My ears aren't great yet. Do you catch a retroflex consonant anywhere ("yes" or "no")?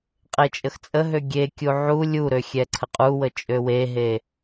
no